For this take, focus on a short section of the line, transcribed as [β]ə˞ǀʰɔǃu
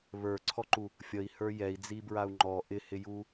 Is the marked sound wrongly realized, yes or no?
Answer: no